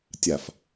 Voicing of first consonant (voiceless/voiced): voiceless